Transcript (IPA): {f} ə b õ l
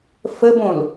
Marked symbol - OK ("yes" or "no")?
yes